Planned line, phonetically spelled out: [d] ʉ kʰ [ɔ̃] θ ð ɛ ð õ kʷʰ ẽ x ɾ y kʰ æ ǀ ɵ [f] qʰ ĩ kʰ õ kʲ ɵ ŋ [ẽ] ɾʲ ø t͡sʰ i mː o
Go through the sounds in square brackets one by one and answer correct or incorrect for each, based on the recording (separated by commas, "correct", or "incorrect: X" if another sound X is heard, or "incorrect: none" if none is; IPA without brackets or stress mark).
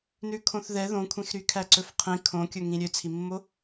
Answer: incorrect: n, incorrect: õ, correct, incorrect: ĩ